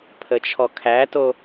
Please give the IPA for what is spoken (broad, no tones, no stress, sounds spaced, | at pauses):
pʰ ə t͡ʃʰ ɔ kʰ æ t o